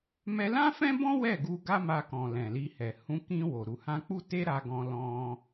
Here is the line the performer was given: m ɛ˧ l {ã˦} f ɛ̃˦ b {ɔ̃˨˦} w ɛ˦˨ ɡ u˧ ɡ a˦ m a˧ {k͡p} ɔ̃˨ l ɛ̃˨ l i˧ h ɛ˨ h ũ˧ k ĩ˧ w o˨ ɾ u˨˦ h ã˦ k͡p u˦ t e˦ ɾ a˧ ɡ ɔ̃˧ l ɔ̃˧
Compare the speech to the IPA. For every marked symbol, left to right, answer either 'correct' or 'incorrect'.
correct, incorrect, incorrect

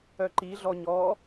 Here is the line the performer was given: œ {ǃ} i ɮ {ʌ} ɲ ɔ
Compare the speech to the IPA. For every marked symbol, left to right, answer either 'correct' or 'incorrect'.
correct, incorrect

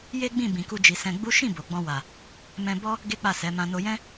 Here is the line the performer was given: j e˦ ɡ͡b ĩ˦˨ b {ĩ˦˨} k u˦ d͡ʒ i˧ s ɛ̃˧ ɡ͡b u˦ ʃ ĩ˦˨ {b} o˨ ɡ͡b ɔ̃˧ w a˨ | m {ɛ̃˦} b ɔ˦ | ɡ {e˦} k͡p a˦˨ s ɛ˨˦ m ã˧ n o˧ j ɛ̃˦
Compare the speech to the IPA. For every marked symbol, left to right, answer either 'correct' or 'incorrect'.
incorrect, correct, incorrect, correct

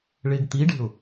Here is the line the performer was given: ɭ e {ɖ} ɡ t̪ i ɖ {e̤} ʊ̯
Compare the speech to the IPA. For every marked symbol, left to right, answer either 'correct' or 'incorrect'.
incorrect, correct

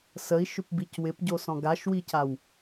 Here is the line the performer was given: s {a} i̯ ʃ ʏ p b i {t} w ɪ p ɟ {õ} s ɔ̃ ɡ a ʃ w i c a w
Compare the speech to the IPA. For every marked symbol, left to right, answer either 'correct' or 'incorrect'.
incorrect, incorrect, incorrect

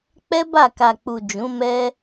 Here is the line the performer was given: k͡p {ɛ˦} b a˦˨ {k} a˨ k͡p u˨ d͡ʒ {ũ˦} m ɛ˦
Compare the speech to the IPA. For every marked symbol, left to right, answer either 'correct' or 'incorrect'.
correct, correct, incorrect

